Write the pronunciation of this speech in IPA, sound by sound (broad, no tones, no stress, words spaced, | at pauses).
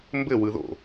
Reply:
mbɘ wɯðo̰